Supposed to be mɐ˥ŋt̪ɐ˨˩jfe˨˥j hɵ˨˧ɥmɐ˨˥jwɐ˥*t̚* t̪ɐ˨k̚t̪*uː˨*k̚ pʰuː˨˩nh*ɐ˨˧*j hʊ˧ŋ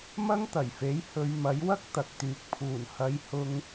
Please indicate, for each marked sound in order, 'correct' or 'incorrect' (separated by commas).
incorrect, incorrect, correct